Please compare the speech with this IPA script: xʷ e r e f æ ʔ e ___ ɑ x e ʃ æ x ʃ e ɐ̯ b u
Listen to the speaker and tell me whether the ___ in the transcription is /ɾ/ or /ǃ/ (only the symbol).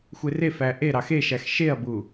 ɾ